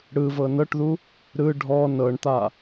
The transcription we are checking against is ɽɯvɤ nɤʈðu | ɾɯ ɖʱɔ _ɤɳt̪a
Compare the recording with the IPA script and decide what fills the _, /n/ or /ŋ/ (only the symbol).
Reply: n